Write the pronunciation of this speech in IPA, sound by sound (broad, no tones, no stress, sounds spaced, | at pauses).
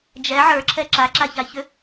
d͡ʒ ɛ ʕ ə˞ ǁʰ ɛ ǁ a ǁ a ç a ç ʏ